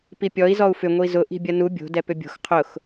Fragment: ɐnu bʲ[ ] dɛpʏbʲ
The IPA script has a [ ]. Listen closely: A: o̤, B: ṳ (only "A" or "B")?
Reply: A